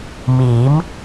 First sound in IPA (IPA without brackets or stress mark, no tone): m